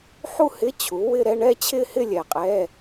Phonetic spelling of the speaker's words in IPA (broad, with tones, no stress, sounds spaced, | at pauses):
ħ u˥˧ h ɪ˧˥˧ t͡ɕʰ u˩˥ w ɪ˥˧ ɾ ɛ˥˧ ɳ ɛ˥˧ t͡ɕʰ ɪ˥˧ h ɪ˥˧ lʲ ɛ˨˩ qʼ ɛ˧˥˧